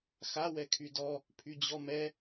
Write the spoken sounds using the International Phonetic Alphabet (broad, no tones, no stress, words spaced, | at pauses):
xa wɛkʰydɔ | pʰyd͡ʑɔmɛ